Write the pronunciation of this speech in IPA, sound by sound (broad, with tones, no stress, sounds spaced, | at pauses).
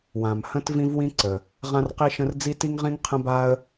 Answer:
w ã˩ m h ə̃˧ t v ĩ˧ v w ĩ˧ ǀ ə˩ | ʁ ã˧ r q i˧ ʃ ə̃˧ r d͡z i˧ t i˧ ŋ ʁ ĩ˧ ŋ qʰ ə̃˧ b a˧ ə̯